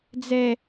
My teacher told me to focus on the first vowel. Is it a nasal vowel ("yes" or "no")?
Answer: no